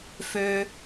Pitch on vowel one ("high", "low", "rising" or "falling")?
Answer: high